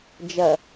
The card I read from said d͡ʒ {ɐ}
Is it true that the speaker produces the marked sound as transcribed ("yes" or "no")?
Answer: yes